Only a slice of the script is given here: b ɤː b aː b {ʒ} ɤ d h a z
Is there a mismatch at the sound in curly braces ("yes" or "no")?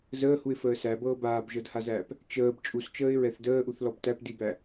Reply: no